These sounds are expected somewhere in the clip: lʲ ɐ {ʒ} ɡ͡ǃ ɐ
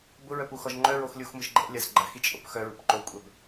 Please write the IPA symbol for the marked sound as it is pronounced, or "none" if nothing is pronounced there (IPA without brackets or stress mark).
z